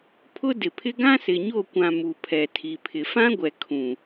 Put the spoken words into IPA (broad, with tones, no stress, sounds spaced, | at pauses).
pʰ ʊ˦ d ɪ˨ pʰ ɪ˦ ɡ ã˦ s ɪ˨ ɲ o˦˨ kʷ ã˨ m u˨ pʰ ɛ˨ tʰ i˨ pʰ ɪ˨ f ã˦ ɡʷ ɛ˨ kʰ ũ˨